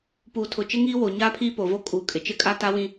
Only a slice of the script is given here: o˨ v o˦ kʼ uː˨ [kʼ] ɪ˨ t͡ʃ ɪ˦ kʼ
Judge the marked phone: correct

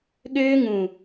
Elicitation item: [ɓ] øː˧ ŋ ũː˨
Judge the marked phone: incorrect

